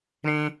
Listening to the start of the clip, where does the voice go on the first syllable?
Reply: high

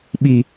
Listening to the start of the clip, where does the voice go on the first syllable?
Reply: low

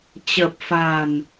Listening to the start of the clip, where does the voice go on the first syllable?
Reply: low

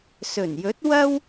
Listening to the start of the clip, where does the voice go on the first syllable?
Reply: low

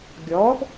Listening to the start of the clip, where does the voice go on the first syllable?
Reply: rising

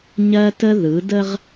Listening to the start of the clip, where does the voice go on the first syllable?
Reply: high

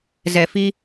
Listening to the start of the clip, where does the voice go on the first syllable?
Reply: low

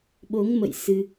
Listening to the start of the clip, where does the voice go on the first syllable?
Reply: rising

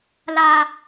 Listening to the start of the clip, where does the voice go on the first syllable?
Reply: low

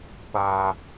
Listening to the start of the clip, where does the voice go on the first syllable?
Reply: low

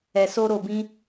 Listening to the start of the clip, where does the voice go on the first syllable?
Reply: low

